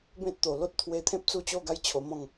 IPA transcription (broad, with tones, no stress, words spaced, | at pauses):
bẽ˦t̚t̪o˨˩lo˦t̚ t̪ʰwe˧ t̪ʰẽ˦p̚t͡su˥˧t͡ɕo˥˧ɡa˦j t͡ɕʰo˧mɔ̃˥˧ŋ